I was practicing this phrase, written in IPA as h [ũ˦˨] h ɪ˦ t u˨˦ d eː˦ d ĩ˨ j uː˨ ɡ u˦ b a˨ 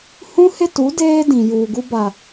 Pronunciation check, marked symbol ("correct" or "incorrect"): incorrect